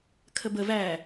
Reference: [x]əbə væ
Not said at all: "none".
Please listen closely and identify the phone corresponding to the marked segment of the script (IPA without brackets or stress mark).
kʰ